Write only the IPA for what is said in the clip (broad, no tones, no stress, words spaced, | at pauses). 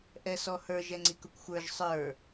ʔɛsɔhə˞ʒ ɛŋ͡ǀikʊkʷxʷə˞ʒ sˤə˞